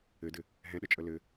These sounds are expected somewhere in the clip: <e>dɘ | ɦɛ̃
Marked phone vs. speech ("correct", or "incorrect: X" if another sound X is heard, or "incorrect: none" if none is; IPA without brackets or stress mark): incorrect: ɘ